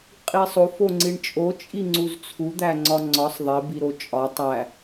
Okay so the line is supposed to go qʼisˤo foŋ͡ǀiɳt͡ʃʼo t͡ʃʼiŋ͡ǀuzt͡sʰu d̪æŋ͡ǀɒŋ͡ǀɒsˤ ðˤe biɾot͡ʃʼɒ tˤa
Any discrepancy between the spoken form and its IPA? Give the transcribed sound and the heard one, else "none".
a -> æ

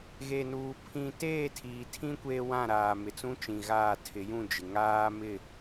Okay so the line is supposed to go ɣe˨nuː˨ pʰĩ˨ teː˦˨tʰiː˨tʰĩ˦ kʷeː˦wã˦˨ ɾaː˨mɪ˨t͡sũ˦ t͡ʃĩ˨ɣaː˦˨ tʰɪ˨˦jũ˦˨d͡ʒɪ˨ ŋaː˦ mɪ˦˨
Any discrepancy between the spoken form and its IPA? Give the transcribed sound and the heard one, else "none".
none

